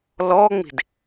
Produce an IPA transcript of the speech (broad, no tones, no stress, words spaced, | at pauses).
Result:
lɔŋ͡mi̤d